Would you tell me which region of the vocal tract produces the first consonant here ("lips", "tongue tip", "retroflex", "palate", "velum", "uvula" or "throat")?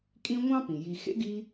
velum